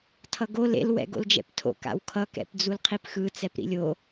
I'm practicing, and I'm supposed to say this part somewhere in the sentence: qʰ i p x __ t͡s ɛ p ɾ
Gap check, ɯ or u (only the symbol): ɯ